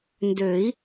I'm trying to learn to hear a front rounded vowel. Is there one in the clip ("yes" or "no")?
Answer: yes